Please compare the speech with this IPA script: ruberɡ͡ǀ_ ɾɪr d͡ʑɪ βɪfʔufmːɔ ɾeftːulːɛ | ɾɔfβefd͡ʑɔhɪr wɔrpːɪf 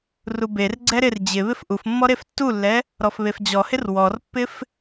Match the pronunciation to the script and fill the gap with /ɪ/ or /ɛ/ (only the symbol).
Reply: ɛ